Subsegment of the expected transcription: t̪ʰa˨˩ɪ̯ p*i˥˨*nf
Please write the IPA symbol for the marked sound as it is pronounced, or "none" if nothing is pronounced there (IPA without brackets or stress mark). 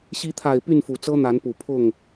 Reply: y˥˨